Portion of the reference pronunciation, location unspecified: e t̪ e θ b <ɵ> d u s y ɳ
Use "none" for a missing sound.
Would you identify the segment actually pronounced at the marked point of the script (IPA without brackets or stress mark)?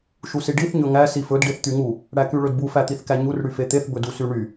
ɵ